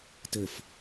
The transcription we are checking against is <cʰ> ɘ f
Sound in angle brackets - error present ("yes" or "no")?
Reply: yes